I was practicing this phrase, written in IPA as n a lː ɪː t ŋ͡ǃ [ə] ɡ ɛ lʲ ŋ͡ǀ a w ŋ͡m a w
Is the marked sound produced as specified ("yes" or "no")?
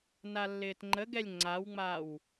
yes